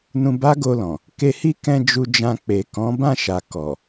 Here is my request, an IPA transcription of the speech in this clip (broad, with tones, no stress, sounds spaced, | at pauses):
n ũ˧ b a˦ ɡ o˧ l ɔ̃˨ | k e˧ h i˦ k ɛ̃˧ d͡ʒ u˧ d͡ʒ ã˧ k͡p e˨ k ɔ̃˨˦ b ã˦˨ ʃ a˨ k ɔ˨